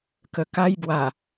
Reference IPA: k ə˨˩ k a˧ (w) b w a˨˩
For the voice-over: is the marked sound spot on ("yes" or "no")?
no